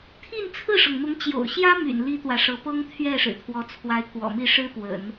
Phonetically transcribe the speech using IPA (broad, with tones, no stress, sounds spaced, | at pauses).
t̪ʰ i˥˧ n t͡sʰ ɹ̩˥˩ ʂ ɤ˩ ŋ n̪ ʊ˧˥ ŋ t͡ɕ j o̰˨˩ ʊ̯ ɕ j ä˥ m y̰˨˩ n l i˥ t̪ w ä˨ ʂ ɤ˧˥ p ɤ˥ ŋ t̪ʰ ɥ ɛ˥˩ ʂ ɻ̩˨˩ t̪ʰ w ɔ˧˥ t͡sʰ w a˧˥ ɪ̯ k w ɔ̰˨˩ m i˥˩ ʂ ɻ̩˥ p w ə̰˨˩˦ n